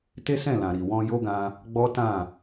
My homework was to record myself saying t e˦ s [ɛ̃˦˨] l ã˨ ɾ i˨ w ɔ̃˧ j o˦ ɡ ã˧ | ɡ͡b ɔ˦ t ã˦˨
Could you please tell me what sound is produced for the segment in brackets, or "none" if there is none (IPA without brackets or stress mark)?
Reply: ɛ̃˦˨